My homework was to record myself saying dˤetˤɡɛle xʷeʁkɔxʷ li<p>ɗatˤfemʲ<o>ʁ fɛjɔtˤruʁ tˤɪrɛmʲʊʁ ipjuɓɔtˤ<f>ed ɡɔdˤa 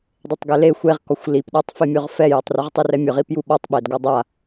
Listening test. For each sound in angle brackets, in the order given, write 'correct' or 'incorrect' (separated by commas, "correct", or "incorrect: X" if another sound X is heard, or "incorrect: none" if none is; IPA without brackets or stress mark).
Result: correct, correct, incorrect: ɓ